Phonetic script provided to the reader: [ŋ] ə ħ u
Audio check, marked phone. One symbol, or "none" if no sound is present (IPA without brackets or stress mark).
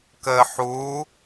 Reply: k